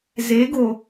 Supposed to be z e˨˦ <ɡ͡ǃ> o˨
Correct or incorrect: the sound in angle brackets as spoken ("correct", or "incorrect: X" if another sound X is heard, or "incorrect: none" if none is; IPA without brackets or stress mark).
incorrect: ɡ